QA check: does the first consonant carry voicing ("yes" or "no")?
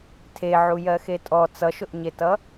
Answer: no